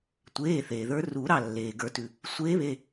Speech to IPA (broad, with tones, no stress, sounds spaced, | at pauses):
tʷ eː˩˧˩ θ eː˩ ð ə˞˧˥ r u˨˩˦ ɾ ɑ˥˩ lː eː˩ ɡ ə˞˨˩˦ t ʉ˩ | sʷ eː˧˥ β e˩˧˩